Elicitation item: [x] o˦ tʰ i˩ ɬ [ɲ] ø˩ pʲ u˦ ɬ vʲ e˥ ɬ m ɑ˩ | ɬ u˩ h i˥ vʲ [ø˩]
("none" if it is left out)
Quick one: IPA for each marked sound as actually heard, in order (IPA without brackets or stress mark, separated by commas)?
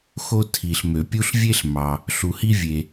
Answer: x, m, e˩